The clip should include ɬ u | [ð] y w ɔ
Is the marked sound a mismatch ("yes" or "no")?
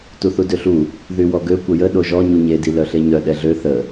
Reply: no